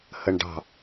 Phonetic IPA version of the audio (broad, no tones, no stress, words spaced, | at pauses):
həɳɖɑ̤